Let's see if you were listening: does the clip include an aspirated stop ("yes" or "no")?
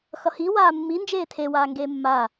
yes